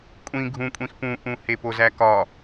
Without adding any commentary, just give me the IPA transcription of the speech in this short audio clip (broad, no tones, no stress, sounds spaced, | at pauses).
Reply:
kʷʼ ĩ ɡʱ ũ kʷʼ ĩ x p ũ ʔ ũ h e p o z æ k ɒ